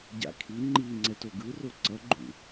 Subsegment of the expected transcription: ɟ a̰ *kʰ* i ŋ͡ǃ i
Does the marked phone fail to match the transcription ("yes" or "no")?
no